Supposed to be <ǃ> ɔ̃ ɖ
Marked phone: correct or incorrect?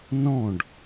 incorrect: n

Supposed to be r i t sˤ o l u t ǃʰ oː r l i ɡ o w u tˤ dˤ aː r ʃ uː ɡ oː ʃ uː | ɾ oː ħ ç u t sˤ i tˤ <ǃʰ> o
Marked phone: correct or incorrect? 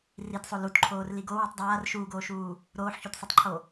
correct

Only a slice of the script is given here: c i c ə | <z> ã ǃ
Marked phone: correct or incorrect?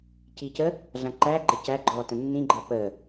incorrect: ɮ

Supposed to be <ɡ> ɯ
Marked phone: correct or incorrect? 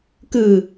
incorrect: k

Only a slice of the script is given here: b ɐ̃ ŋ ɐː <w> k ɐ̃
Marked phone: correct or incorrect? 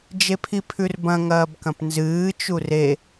incorrect: b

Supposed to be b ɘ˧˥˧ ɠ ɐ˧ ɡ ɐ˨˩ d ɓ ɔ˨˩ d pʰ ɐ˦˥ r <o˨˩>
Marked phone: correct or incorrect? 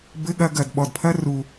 incorrect: u˨˩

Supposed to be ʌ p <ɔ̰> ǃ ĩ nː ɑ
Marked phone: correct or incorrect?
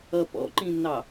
correct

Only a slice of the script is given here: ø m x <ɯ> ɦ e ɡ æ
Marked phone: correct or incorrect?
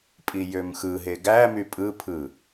correct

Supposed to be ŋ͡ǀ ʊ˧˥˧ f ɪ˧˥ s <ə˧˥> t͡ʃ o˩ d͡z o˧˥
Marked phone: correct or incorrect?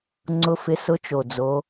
incorrect: ʊ˧˥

